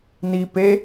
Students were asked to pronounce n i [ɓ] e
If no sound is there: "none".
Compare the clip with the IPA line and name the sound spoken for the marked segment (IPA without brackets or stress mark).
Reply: p